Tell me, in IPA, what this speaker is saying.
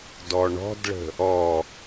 d ɔ ɳ ɔ̤ d ɭ ə̤ | ɔ

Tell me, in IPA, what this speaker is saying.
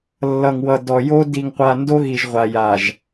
lː ʌ˨ ŋ w ʌ˨ d ɔ˨ j o˦ d i˨ ŋ qʷ a˨ n d o˦ ɣ i˨ ʒ ʁʷ a˨ j a˨ ʒ

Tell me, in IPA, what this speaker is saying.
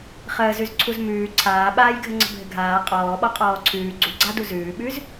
χ əː z ʉ z ǀʰ u z m ʉː ǀʰ aː ɓ aː j ɡʱ ə ŋ͡ǀ ə̤ bʱ ɘ ɡʱ aː qʼ ɔː ɓ ɔ qʼ ɔː ǀʰ ʉː ɡ͡ǀ u ɡ͡ǀ a d u z ʉː ɓ ʉ z

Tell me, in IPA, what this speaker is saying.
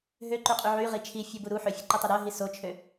ɦ ø ǃ y qʼ y ʕ y ʁ i t͡ʃʰ i fʲ u b u ɾ u ħ ø fʲ ɛ ǃ o tˤ ɛ ɾ œ ɦ i s o t͡ʃʰ ø

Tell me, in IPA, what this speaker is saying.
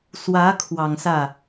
s w ä˧˥ kʰ w ɑ˨˩ ŋ s ä˥˩

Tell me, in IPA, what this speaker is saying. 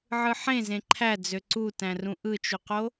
ʕ ɯ ħ ẽ z ẽ ǃʰ æ d͡z ø ǀ u t æ̃ r ũ ʔ ɯ t͡ʃ u q o

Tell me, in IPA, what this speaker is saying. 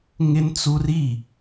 ŋ ɪ˦ n t͡s u˦ r i˦˨

